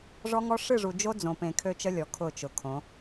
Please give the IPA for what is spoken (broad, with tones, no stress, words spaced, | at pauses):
ʐɔ˦ŋɔ˦ ʂɨ˦˨ʐu˨d͡ʒo˦ d͡zõ˨pẽ˨ kʰø˦t͡ʃə˦lʲɔ˨ kʰʊ˦˨t͡ʃʊ˨kʰõ˨˦